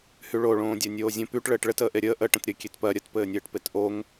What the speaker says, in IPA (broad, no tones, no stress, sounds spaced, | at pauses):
h y ɭ o ɭ õː dʲ ɜ nʲ oː zʲ ə̃ p y ʈ ɭ ɘː ʈ ɭ ɘ t əː ʔ e ɾʲ əː ʔ ə ʈ ə̃ t ɾʲ ɘ kʲ e t p ɜ ɾʲ ə t p ɘː nʲ ɘː ʈ p e t ʔ o ŋ